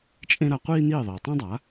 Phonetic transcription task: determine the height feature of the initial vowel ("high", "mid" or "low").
mid